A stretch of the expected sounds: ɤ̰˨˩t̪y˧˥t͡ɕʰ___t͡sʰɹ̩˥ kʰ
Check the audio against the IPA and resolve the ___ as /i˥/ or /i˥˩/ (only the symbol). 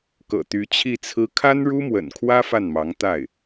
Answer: i˥˩